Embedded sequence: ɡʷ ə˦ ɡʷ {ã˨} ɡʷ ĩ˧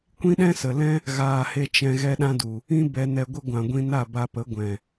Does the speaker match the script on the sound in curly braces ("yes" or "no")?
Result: yes